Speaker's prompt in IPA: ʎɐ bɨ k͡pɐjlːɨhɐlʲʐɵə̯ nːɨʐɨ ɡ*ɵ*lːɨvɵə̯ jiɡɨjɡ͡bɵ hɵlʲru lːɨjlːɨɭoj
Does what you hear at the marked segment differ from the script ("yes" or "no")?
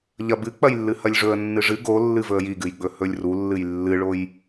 yes